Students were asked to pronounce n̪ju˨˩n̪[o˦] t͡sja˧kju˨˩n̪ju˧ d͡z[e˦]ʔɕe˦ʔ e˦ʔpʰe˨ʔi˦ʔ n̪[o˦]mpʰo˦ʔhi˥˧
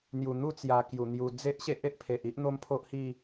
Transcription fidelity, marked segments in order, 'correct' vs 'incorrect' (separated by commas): incorrect, correct, correct